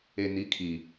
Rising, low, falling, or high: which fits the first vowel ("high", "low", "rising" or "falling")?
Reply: low